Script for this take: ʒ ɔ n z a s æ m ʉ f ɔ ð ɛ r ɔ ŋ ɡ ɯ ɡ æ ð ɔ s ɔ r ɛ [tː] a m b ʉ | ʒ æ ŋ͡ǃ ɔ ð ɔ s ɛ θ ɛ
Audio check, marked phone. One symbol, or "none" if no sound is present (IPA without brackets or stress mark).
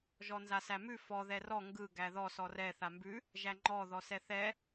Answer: θ